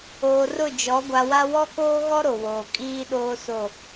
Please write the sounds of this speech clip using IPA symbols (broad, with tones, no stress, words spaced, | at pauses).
oː˨rʊ˦˨d͡ʒɔ˨˦ ɡʷa˨wa˦ wɔ˦koː˦ɣɔ˦ ɾo˨woː˨ kʼiː˦ɗoː˦ so˦˨